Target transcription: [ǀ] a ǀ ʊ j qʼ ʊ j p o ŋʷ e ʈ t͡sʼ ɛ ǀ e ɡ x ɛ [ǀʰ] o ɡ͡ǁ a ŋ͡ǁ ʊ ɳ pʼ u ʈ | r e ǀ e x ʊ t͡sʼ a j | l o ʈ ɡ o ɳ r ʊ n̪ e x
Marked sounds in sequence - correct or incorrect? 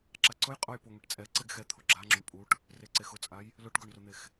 incorrect: ǁ, incorrect: t̪ʰ

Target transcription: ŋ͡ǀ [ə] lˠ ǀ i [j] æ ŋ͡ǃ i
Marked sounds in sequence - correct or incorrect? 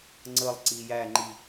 correct, correct

